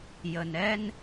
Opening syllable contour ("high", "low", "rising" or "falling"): low